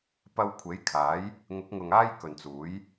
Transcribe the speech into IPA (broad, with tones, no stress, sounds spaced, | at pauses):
p ɐ˧ w kʷʰ e˨˥ j kʰ aː˨˥ j | ŋ ʊ˨˥ k̚ ŋ ʊ˨ ŋ aː˥ j k ɵ˨ n t͡s uː˨˥ j